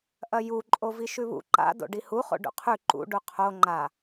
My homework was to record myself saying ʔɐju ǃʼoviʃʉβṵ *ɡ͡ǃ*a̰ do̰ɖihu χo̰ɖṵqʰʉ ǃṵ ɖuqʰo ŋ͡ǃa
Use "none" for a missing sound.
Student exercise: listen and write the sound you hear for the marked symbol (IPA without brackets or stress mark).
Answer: ǃ